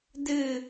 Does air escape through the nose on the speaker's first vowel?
no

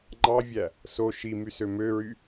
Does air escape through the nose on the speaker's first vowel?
no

